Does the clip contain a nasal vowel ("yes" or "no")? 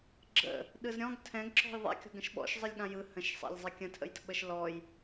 yes